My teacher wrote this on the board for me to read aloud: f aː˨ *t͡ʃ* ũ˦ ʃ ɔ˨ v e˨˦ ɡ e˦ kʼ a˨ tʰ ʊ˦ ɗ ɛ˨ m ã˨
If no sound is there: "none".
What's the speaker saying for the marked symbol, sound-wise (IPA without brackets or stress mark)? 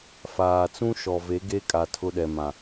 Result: t͡s